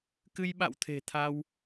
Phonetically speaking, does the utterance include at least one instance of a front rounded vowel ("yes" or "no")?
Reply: no